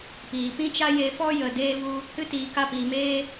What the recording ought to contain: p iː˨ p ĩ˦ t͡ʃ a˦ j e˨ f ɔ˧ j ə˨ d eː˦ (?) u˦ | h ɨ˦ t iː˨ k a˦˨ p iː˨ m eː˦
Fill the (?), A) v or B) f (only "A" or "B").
A